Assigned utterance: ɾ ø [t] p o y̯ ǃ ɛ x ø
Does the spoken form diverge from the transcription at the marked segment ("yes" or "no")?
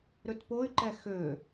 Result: no